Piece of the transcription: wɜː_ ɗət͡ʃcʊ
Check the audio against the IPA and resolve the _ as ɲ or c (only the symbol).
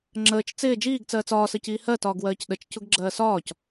c